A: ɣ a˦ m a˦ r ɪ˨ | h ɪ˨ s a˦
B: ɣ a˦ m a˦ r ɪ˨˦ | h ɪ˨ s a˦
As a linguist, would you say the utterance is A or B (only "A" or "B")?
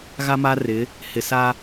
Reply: B